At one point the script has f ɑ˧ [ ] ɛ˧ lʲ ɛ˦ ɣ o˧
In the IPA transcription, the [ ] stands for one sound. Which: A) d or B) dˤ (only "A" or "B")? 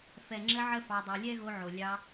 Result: B